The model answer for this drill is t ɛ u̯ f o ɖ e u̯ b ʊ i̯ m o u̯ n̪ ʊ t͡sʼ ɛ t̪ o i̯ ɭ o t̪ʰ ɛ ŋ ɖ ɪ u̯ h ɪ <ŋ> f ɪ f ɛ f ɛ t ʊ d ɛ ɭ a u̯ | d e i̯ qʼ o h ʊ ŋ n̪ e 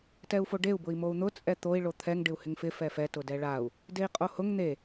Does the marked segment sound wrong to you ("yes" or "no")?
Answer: no